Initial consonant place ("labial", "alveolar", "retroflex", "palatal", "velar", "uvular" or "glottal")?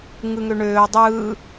velar